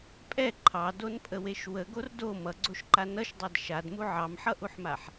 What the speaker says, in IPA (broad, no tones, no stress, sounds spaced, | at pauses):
pʼ ɛ ǃʰ ɑ d o n pʼ ə w e ʃ w ə ɡ o r d o m ʌ ɡ͡ǀ o ʃ ǃ a n ʌ ʃ dˤ ɑ d ʃ a d m u ʕ ɑ m ħ ʌ ʔ u ħ m a ħ